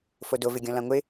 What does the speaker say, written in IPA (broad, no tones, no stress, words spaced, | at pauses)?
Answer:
fodo vɪɡʲɔ̃lãŋʷɪ